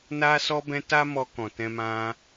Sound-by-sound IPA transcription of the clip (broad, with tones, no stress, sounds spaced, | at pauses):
n a˧ s ɔ˧ b ɛ̃˧ t a˦ m ɔ˧ k ɔ̃˨ t ɛ̃˧ m ã˧